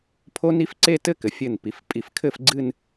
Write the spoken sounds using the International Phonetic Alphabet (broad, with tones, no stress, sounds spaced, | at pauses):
pʰ o˥ n i˥ f ǀ e˥˧ t ɘ˥˧ k ɘ˩˧ fʲ ɘ˧˩ n p i˩˧ f pʼ i˧˩ f kʰ ɘ˥˧ f ɡ͡ǀ ɨ˥˧ n